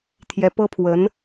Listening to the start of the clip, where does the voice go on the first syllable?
rising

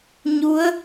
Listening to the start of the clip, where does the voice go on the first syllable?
rising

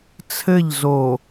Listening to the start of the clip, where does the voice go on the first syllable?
falling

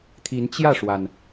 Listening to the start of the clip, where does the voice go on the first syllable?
rising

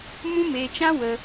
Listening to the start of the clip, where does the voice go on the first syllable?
high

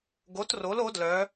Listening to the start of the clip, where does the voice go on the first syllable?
rising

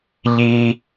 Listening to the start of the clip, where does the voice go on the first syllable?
high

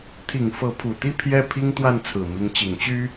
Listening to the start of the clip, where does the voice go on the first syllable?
low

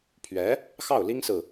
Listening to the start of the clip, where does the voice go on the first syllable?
rising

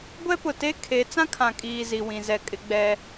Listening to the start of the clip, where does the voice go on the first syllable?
high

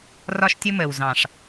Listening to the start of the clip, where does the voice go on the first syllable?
high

